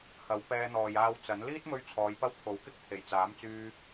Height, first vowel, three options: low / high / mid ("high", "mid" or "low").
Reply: low